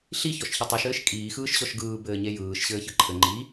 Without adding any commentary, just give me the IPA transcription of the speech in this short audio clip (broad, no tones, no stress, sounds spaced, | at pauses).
ɬ i ç ɔ ʃ ç ɘ tˤ ɯ ʃ ɘː ʃ kʼ iː x ɯː ʃ ɕ ɔ ʃ ɡ ɯː b ɘː ɲ e j ɯː ʃ ɕ ɘː ç ɯ ǃʰ ɘ ŋ͡ǃ i